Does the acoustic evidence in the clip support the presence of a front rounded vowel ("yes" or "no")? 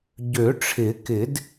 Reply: yes